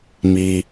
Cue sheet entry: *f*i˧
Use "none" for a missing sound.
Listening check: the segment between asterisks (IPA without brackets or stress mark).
m